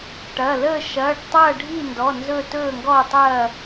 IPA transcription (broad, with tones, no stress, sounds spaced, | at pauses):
ʈ ɐ˩˧˩ l əː˥˨ ʃ ɐː˩˧˩ ɖ tˤ ɐː˥˨ ɖʱ i˥˨ n d ɔ˩˧˩ n z ɵ˥˨ t ɵː˥˨ ŋ ɡ ɔː˥˨ tˤ ɐː˥˨